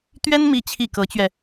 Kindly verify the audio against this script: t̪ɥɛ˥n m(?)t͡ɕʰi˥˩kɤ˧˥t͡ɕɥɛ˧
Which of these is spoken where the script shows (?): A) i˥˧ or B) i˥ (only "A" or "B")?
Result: A